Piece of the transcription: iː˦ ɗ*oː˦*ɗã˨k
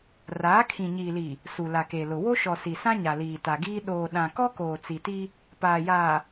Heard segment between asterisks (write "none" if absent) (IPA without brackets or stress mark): oː˨